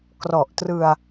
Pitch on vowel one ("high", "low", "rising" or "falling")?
low